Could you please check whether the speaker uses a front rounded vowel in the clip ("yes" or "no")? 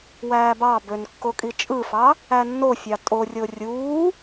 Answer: yes